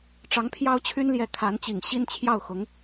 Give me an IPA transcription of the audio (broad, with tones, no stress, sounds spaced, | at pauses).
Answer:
ʈ͡ʂ ɑ˧˥ ŋ pʰ j ɑ˥ ʊ̯ t͡ɕʰ y˥ n l j ɛ˧˥ kʰ a˧˥ n t͡ɕ i˨˩ ŋ ɕ i˥˧ n t͡ɕʰ j ɑ˥˩ ʊ̯ x ʊ˧˥ ŋ